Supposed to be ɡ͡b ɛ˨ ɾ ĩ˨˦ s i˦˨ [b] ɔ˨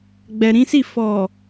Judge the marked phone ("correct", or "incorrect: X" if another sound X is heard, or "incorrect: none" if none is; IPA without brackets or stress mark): incorrect: f